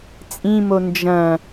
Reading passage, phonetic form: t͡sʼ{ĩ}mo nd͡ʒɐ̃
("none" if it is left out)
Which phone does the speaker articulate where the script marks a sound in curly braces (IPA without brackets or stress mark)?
ĩ